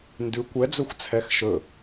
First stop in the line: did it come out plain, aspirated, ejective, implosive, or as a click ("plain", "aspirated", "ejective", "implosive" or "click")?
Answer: plain